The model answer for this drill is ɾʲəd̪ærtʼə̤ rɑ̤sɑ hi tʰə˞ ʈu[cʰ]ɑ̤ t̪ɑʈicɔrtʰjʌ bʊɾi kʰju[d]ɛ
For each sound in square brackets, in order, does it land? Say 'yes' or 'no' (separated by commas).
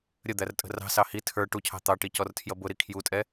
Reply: yes, no